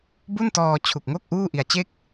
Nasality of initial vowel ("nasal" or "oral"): oral